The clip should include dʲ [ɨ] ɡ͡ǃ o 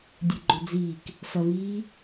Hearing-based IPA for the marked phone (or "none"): ɨ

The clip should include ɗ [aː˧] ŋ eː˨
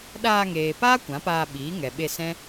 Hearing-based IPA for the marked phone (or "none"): aː˧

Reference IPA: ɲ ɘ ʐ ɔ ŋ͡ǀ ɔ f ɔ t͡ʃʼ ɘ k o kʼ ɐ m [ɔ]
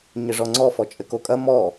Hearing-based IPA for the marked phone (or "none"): ɔ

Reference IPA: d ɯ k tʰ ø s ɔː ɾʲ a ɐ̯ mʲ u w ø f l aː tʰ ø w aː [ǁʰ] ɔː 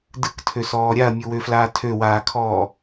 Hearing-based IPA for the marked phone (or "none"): kʰ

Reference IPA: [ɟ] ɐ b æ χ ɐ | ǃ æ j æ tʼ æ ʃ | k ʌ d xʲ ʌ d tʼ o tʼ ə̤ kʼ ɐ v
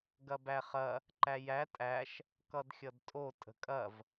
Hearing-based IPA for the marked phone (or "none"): ɡ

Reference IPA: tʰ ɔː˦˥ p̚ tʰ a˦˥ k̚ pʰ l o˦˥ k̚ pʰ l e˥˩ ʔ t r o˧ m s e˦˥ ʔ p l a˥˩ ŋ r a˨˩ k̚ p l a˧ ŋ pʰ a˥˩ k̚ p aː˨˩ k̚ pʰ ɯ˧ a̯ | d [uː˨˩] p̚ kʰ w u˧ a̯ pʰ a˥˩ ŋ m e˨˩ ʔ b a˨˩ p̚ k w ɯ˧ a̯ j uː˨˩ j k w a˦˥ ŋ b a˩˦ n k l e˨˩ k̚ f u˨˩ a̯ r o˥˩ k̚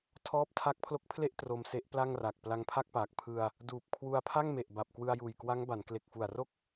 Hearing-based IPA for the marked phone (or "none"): uː˨˩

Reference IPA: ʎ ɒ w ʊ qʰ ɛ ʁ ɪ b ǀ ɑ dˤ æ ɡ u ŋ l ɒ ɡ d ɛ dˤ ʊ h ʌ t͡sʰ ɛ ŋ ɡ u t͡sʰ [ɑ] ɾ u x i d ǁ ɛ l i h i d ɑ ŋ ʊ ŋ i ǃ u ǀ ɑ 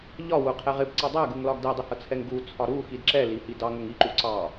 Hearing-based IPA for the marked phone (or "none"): ɒ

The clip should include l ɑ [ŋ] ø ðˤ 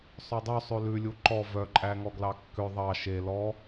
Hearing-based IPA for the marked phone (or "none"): kː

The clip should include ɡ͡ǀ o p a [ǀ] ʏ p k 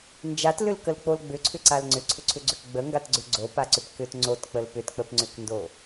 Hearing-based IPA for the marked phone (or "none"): ǀ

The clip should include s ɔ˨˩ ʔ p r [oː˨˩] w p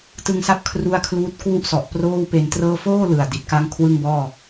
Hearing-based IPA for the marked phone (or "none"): oː˥˩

